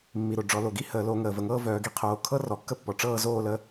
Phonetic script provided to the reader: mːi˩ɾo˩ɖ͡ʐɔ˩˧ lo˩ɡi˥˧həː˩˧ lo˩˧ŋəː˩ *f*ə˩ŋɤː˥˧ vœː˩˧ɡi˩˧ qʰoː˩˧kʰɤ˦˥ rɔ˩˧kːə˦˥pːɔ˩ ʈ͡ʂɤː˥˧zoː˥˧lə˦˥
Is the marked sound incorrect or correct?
incorrect